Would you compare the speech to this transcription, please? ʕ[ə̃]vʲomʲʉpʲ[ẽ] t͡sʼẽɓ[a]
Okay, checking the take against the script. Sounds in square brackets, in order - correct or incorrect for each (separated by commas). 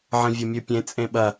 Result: correct, correct, incorrect